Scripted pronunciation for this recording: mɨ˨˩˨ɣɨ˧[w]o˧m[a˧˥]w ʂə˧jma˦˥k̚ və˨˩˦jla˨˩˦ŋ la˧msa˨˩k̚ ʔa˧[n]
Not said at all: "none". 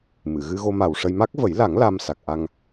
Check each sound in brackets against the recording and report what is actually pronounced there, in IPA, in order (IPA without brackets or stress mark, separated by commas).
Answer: ɣ, a˨˩, ŋ